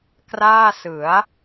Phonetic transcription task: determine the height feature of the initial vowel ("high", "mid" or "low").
low